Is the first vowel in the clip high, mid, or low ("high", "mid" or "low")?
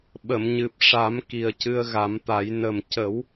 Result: mid